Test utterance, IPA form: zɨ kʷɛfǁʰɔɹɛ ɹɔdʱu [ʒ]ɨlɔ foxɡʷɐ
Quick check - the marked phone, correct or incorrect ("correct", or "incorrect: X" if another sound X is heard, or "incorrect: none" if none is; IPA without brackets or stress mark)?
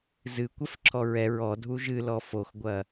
correct